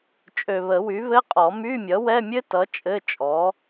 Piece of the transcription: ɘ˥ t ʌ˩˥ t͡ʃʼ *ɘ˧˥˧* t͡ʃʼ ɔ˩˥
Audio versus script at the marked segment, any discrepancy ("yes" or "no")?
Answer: no